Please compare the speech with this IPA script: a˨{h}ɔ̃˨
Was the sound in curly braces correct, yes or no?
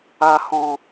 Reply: yes